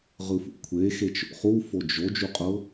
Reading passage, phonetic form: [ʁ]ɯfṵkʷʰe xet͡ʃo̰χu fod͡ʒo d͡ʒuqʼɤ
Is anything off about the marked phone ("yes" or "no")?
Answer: no